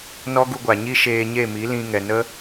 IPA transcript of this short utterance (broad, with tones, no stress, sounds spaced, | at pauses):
n ɔ˦ ɡ u˧ ɡʷ a˨ ɲ i˦ ʃ eː˧ ɲ e˦˨ m i˨˦ l ĩ˧ ŋ ɛ˨ n ə˦